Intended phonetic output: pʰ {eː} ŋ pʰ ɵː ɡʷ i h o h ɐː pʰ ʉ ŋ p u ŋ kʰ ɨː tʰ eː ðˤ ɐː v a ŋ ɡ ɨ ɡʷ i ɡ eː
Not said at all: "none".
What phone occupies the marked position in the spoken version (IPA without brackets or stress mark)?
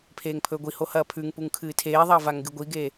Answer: eː